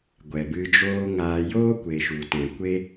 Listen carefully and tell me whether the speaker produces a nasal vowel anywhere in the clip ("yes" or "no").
yes